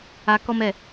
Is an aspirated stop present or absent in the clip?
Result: absent